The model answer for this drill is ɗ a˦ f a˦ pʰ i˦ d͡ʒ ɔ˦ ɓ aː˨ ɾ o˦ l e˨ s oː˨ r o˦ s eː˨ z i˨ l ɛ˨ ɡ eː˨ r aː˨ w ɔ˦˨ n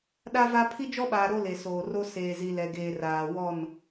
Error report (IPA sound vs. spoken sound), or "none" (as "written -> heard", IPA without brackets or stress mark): f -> v